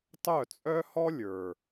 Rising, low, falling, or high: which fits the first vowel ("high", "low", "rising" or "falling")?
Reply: falling